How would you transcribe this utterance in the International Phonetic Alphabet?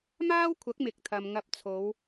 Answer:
maː˥wkʷʰɐ˨˥k̚mɪ˨k̚t̪ʰɐ˨m ŋɐ˧p̚t͡sʰo˨˧w

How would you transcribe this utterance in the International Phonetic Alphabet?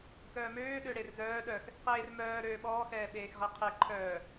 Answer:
kœːmøː ɗøɽerzœː ɗœx | qeːr mœː ɾøːɓɔː xɛːɓeːxʁɛqʰe ǃʰœː

